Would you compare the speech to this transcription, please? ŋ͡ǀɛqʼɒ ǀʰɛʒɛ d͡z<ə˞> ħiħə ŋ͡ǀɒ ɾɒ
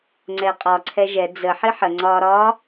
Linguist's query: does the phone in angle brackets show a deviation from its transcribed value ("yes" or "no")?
yes